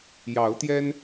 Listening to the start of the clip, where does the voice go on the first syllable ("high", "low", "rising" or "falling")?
rising